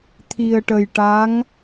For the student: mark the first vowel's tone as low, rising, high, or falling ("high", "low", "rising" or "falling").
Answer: low